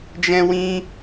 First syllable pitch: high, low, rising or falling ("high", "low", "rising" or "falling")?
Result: high